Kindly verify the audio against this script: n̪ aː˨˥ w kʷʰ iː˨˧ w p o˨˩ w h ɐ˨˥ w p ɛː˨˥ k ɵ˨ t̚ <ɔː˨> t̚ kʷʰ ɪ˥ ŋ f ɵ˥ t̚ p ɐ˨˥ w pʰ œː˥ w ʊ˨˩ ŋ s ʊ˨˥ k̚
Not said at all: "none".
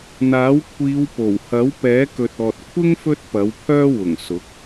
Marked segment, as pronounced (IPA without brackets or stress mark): ɔː˨